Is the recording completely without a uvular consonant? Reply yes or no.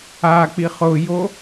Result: no